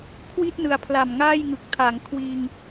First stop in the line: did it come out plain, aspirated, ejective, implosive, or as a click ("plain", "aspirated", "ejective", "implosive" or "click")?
aspirated